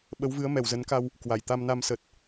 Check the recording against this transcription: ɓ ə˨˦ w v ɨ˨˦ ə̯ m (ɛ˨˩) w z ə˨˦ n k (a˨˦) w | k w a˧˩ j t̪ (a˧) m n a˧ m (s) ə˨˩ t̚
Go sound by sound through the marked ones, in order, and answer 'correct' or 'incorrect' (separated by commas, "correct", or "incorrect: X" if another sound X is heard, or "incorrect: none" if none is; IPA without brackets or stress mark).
correct, incorrect: a˧, correct, correct